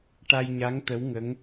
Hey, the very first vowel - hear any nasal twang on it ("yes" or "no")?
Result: no